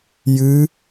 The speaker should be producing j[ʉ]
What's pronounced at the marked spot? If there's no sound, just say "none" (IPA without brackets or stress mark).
ɨ